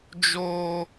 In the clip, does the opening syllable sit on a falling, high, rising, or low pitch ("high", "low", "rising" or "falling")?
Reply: high